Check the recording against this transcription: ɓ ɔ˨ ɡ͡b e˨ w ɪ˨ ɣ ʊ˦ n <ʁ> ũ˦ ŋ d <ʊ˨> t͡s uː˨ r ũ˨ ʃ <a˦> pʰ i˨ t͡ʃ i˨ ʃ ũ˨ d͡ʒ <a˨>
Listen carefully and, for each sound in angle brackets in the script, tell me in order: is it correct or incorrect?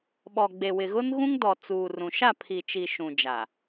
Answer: incorrect: ɣ, incorrect: ɔ˨, incorrect: a˦˨, correct

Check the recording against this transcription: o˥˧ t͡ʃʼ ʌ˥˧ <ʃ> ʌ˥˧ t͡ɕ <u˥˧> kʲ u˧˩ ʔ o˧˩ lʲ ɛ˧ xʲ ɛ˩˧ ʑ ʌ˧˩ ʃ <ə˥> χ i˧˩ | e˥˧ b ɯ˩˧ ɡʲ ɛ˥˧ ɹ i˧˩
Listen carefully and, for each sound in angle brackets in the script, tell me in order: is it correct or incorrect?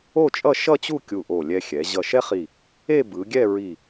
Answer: correct, correct, incorrect: ɛ˥

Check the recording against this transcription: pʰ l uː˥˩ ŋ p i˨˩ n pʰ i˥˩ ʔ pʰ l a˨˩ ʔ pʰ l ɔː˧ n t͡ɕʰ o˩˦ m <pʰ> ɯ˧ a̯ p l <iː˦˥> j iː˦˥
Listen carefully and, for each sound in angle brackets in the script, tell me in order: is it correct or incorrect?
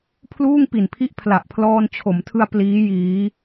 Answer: incorrect: tʰ, correct

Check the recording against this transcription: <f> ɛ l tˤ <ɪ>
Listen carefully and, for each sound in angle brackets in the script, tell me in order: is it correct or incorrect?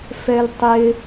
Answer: correct, correct

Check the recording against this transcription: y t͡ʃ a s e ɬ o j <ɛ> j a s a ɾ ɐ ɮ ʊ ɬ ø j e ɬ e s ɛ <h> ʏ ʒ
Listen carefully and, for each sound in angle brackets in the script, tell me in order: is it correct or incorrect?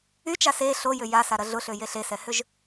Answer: incorrect: ʏ, correct

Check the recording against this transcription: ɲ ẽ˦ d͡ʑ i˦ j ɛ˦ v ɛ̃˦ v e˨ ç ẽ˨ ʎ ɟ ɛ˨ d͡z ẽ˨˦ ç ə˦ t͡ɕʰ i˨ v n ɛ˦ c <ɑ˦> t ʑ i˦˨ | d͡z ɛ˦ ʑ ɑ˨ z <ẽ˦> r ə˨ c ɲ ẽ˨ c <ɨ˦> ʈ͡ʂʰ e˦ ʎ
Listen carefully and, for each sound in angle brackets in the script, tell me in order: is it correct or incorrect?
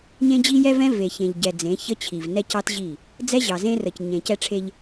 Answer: correct, correct, incorrect: ɛ˦

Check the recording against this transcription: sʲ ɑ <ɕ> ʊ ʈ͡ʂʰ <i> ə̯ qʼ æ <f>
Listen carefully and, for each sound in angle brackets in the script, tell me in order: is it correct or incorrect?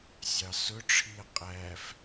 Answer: incorrect: s, correct, correct

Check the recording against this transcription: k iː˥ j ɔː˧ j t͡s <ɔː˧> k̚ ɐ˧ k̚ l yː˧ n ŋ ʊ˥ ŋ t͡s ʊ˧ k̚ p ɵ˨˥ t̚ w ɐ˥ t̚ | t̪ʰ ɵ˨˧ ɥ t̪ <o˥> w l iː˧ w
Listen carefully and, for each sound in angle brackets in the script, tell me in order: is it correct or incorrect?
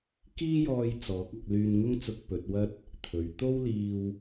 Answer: incorrect: ɔː˨˥, correct

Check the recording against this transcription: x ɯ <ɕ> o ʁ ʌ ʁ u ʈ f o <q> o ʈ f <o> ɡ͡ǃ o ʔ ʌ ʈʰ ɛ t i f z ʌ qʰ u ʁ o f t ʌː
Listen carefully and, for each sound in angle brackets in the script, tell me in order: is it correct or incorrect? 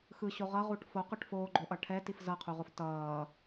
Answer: correct, correct, incorrect: oː

